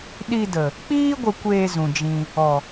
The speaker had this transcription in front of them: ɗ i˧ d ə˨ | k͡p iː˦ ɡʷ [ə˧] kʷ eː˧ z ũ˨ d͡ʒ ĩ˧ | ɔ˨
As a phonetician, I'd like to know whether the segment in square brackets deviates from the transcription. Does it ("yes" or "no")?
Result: no